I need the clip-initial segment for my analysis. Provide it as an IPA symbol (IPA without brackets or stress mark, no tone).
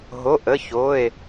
ɦ